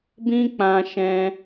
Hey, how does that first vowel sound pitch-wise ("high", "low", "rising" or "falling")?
high